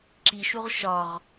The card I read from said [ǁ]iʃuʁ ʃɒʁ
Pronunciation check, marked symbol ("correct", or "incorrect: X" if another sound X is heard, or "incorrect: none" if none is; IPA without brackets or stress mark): correct